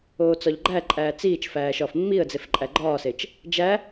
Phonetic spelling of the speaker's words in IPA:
oː t͡s ɒ ʎ ɡ͡ǃ æ ǃʼ æː t͡s iː t͡ʃ f æː ʃ ɒː f mː i ə̯ d͡z e f ǃʼ æ ɡ͡ǃ ɒː s e t͡ʃ | d͡ʒ æ

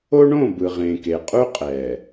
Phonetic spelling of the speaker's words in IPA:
o˦ ɳ õ˦˨ b ɯ˨ ʁ ẽː˨ k e˨ qʼ u˦ qʼ ɛː˨

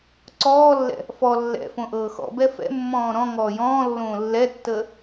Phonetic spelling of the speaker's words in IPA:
ǀ ɔː lː ɛ̰ | f ɔ lː ɛ̰ f õ ʔ ɤː x ɔ̰ b ɛ f ɛ̰ mː ɔ̃ː ɾ ɔ̃ ŋ ɔː j ɔ̃ː lː õː lː ɛ tː əː

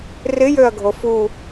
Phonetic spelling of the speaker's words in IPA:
r ɪ j ø ɐ̯ ɡʱ o f u

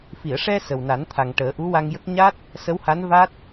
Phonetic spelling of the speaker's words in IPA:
f i˨˩˨ ə̯ ʂ ɛ˧ s ə˨˩ w n a˨˩˦ n t̪ʰ a˨˩ ŋ ʈ əː˨˩˦ ʔ u˧˥ w a˧ ŋ j ə˦˥ k̚ ɲ a˦˥ t̚ | s ə˧˥ w h a˧˥ n v a˦˥ t̚

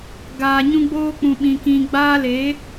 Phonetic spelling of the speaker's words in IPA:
ɡ aː˨ ɲ ũ˦ ɡ͡b oː˦ k͡p ũ˦ ɓ ĩ˦ k ĩ˦ ɡ͡b aː˦ l e˨˦

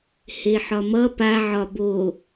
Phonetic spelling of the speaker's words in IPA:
h e ħ ɒ m ʌ p a ʕ ɒ b o

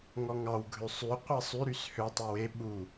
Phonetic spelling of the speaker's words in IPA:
ŋ ɔ ŋ ɑ w ɡʱ ø sˤ y qʷ ɛ sˤ y ɾ y s h ø tˤ e w e ɓ u

